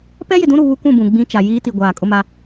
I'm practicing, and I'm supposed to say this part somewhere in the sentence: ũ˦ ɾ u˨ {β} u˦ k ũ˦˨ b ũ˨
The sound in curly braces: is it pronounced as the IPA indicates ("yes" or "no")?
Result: yes